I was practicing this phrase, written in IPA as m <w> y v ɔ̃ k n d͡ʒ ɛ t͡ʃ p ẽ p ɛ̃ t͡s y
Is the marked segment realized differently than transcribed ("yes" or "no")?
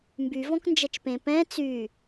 yes